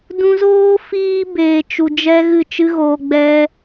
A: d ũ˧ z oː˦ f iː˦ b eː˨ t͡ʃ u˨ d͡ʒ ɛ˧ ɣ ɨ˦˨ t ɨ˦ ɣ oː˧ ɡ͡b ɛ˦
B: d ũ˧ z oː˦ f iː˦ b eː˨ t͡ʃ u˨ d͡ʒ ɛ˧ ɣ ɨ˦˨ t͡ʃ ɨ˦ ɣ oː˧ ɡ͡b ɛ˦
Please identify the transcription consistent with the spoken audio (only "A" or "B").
B